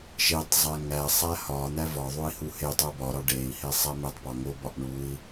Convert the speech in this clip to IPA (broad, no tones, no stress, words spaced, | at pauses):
ʃetˤzˤæ ŋæsˤ æhɒn̪æ vɒðˤoi̯ huhetˤo bɒɾɒ ɖei̯ hesˤæmetˤpɒ ŋobɒʔ ɳui̯